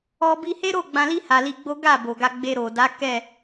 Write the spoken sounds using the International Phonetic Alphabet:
ɔ˧ bi˧he˦ɾo˦˨ ɡ͡bã˧li˦ ha˧li˧ɡ͡bo˦ ɡa˦˨bo˨ɡa˧ ɡ͡be˧ɾo˨ da˨˦kɛ˦˨

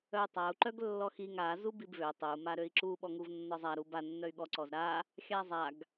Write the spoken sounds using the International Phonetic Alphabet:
œy̯tˤau̯ ǃœɡlːɔxiŋ a zubibvø tˤøu̯ maɾøi̯ǁu ɓɔŋuvnːɔzˤa ɾuba nːœy̯ɠɔ ǀɔzɾa | xʲazˤaɡ

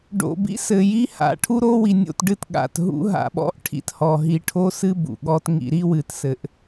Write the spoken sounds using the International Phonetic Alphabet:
ɖo̰˨ bḭ˦sɘ˨ ji˦ ha̰˨ʈʰu˦ɾo˦wi˨ nʲo̰˦tɖɨ˦tɠa̰˨t ɦṵ˦ ɦa̰˨ɓɔ̰˦ʔʈʰḭ˨t hɔ˨ɦi˨ʈʰo˦sɨ˦ bṵ˨ɠɔ˦tŋḭ˦ ɾi˦wɨ˨tsɘ˨˦ʔ

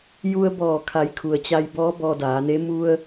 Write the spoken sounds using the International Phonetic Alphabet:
ju˧ə̯bɔː˧˩kʰa˩˧j kʰu˩ə̯t͡ɕa˧jbɔː˧˥ bɔː˧daː˩˧ne˧˥ mu˧ə̯

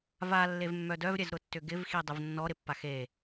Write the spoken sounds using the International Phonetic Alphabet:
va lːevmːœdœvɾʲɛz ɾʊtːʏɡɪvxi dˤɪvnːɔɾɪpːax e

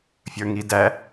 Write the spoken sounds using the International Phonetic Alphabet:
fʲə˞ŋidæ

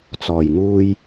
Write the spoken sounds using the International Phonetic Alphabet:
t͡sɔː˨˩jŋuː˧j

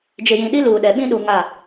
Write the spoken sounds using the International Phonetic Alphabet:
d͡ʒɪ˨jĩ˨ɗi˦ luː˨ɗɛ˨ɓĩ˦ ɗu˨ ŋa˦˨

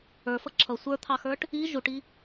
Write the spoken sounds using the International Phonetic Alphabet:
ə˞fʌ ǁʰʌ sʷə˞t̪ʰɑxə˞ʈ | i ʒuʈi

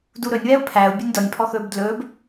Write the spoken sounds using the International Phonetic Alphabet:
duɾɵnʲwɛʊ̯ pʰæʊ̯ bʲunʲdɔnʲpʰɔ xɵːbdlɵːb

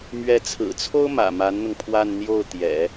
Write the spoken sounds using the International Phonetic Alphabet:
mɥɛ˧˥t͡sʰɹ̩˨˩t͡sʰo˥ʊ̯mä̰˨˩ ma˧˥nn̪ʊ˧ŋ pʰwa˥˧nn̪jo˥˩ʊ̯t̪jɛ̰˨˩˦

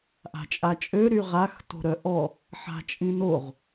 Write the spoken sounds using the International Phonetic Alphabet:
ʔa̤t͡ʃʼat͡ʃʼø ɾyʁax to̤ɾœʔɔ | ħa̤t͡ʃʼĩnoʁ

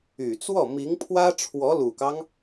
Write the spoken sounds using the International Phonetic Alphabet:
y˨˩t͡swɔ˥˩ mi˧˥ŋpʰwä˥ʈ͡ʂʰwɔ˧˥ lu˨˩kɑ˦ŋ

